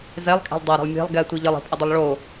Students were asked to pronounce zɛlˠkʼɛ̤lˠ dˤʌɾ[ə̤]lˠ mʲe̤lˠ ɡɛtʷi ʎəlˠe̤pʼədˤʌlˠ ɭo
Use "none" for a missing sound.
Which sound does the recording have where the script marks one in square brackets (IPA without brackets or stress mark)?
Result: ə̤